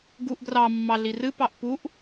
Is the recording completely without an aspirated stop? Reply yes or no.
yes